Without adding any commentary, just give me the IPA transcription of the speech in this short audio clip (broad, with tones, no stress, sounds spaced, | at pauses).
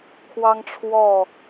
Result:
kʰ w ɑ˦ ŋ ʈ͡ʂʰ w ɔ˥˨